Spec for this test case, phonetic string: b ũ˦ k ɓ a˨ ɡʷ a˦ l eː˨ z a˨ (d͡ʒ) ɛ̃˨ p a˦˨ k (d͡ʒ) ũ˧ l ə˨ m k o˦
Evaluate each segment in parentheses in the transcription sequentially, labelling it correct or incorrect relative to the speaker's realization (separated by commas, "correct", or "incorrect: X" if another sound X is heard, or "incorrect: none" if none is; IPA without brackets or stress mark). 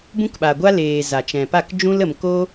incorrect: t͡ʃ, correct